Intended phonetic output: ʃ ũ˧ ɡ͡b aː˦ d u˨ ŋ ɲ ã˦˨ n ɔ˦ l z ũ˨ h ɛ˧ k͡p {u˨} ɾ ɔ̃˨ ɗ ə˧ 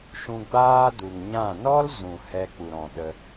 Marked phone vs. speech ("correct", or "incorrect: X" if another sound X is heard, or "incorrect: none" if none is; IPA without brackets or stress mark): correct